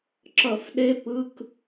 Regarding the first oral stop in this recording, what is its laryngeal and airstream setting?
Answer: click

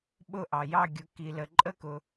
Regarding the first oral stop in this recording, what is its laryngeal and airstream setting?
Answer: implosive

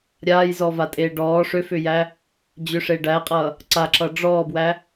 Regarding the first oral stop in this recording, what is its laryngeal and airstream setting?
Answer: ejective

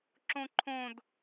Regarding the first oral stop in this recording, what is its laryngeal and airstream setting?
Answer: click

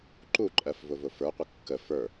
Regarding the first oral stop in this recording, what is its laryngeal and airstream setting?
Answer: click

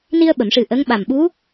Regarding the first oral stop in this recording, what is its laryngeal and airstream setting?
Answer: implosive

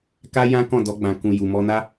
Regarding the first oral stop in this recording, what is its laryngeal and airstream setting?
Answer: plain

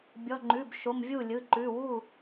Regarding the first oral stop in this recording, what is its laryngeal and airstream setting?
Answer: plain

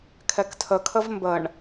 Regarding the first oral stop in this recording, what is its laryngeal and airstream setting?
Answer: aspirated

